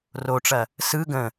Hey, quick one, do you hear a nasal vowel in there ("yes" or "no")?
yes